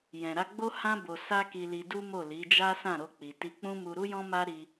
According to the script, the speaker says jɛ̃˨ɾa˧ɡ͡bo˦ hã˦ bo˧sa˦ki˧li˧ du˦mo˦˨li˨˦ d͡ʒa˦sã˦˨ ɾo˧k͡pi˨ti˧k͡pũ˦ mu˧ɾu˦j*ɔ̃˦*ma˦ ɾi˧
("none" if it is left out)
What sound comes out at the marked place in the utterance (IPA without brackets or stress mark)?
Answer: ɔ̃˦